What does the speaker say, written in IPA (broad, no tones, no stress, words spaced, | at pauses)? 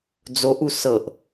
d͡zoʔu sɤʔ